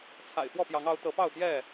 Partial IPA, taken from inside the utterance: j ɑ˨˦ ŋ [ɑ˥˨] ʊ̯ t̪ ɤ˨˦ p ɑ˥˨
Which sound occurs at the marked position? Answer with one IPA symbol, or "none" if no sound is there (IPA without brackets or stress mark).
ɑ˨˦